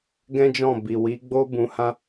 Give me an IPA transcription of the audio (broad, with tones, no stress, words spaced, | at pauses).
ɡɛ̃˦d͡ʒɔ̃˦˨ bi˨wi˨˦ɡ͡bo˦ bũ˧hã˦